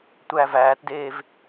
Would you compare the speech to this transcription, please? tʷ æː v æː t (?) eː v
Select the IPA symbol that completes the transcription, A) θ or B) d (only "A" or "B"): B